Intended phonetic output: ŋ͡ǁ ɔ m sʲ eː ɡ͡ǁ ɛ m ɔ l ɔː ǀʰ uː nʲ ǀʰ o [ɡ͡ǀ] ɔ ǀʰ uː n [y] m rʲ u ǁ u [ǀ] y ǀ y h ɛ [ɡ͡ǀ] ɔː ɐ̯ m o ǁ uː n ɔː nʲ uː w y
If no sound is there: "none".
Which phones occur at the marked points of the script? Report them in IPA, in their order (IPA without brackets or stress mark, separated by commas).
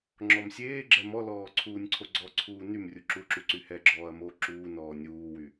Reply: ɡ͡ǀ, y, ǁ, ɡ͡ǁ